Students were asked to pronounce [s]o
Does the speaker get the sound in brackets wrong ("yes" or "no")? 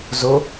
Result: yes